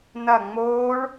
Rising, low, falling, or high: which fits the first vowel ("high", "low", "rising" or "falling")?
falling